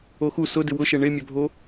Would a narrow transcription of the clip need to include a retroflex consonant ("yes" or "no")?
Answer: yes